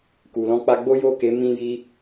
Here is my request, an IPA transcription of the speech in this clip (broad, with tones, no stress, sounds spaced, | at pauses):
k u˨ l ɔ̃˧ k͡p a˧ ɡ͡b o˦ j o˦˨ k e˨˦ m ĩ˦ j i˦